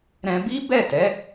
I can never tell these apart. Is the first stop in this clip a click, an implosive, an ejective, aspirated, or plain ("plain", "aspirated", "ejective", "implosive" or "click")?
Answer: plain